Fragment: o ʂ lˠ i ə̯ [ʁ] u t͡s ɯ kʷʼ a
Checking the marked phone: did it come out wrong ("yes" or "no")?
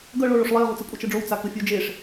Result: no